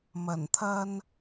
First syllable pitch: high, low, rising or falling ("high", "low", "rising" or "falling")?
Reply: low